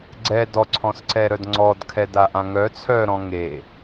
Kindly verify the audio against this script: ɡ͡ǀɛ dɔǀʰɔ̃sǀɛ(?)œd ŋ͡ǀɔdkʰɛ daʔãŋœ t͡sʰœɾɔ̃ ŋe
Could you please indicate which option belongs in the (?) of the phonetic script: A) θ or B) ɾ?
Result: B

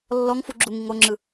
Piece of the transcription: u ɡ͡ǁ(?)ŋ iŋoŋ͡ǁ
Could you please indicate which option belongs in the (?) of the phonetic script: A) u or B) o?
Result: A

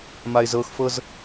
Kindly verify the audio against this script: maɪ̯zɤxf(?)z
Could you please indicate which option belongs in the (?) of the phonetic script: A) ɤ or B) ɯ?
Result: A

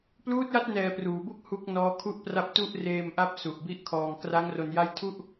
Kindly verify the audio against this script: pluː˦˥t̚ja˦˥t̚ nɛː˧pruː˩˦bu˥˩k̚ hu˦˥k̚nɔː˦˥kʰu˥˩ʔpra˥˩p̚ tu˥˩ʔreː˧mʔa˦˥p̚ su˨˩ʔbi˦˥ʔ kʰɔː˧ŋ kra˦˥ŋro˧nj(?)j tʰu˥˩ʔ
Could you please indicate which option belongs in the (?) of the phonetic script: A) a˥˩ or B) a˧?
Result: A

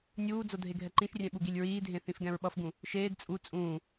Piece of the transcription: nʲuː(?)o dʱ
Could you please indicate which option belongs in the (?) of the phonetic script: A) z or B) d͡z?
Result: B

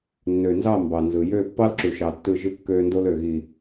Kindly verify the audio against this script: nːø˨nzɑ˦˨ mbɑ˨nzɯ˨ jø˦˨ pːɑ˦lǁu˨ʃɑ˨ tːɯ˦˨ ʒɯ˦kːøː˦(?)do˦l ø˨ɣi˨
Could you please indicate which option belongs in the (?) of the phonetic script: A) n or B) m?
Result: A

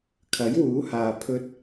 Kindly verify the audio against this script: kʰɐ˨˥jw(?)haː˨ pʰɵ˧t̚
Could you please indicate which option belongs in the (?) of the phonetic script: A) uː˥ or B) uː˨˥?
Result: B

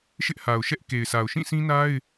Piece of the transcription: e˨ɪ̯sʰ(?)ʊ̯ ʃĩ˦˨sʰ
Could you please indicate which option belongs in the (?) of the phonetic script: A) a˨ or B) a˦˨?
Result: A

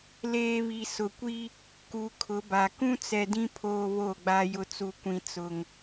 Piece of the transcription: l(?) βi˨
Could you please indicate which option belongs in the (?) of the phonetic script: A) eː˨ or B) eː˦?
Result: A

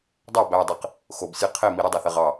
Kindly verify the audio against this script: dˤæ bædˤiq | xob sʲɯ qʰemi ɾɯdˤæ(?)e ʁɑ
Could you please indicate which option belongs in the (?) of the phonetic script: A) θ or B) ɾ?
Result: A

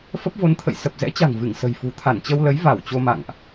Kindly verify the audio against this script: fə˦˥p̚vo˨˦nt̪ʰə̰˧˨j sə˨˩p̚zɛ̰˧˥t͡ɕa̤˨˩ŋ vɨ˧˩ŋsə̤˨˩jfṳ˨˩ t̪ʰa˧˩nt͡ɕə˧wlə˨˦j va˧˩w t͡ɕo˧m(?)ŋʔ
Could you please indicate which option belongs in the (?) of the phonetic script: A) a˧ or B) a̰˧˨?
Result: B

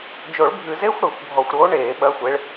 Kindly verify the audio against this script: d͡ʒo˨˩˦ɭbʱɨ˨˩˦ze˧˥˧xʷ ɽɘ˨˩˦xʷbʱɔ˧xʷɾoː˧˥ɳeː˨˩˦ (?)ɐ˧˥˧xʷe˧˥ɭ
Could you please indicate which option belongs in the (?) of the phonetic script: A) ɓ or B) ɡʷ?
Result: A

